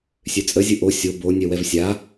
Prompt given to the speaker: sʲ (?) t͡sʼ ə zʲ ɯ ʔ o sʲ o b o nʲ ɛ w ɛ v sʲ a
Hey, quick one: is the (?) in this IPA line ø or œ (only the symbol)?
ø